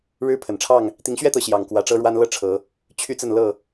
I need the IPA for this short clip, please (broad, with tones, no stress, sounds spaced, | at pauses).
ɻ ɻ̩˦ pʰ ə˨˩ n ʈ͡ʂʰ ɑ˥˨ ŋ | t̪ i˨˦ ŋ ɕ ɥ ɛ˦ t̪ ɤ˨˦ ɕ j ɑ˨˩ ŋ k w ä˨˦ ʈ͡ʂ ɤ˦ ɻ w a˦ n l ɤ˥˨ ʈ͡ʂʰ ɤ˨˦ | t͡ɕʰ y˦ t͡s ə˥˨ n l ɤ˥˨